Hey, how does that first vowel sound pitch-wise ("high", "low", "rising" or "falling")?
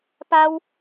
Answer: high